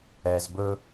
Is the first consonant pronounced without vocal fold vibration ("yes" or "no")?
no